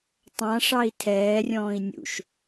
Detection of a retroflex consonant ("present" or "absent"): present